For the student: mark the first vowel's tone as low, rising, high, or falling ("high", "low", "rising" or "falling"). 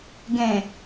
low